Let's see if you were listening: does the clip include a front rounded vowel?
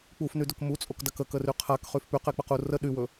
yes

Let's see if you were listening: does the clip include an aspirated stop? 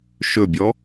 no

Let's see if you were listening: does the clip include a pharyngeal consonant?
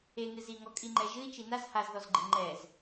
no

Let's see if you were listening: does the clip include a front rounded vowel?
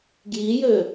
yes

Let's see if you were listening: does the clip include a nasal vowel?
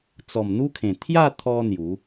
yes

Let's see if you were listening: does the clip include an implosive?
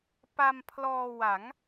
no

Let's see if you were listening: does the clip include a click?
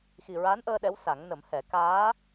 no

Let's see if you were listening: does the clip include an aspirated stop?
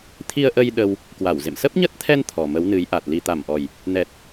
yes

